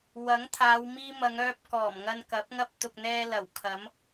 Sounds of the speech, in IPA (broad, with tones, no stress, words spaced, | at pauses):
wɐ˨˥ŋt̪ʰaː˨˧w miː˧ mɐ˨˧ŋœː˧p̚ kɔː˨˩m ŋɐ˧nkɐ˨˥p̚ŋɐ˥p̚ t̪ʊ˨k̚n̪ɛː˧lɐ˨˩w kʰɐ˨˥m